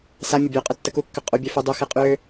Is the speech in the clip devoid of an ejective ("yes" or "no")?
no